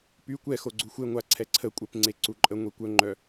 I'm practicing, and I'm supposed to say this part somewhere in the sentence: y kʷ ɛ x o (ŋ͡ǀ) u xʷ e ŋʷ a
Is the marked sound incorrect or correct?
incorrect